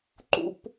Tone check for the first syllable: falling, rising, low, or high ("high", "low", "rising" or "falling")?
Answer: high